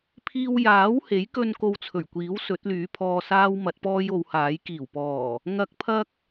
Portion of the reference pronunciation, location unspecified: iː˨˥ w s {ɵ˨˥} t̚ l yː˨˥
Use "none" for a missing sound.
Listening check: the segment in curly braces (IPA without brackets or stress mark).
ɵ˨˥